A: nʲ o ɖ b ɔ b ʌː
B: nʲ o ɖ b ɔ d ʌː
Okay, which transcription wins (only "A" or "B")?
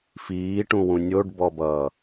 A